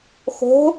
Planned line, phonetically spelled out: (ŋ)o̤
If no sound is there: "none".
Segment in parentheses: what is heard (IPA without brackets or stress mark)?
x